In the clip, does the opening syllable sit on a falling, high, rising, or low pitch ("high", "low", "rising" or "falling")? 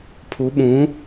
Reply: rising